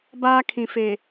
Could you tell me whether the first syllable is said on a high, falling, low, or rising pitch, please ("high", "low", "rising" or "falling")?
high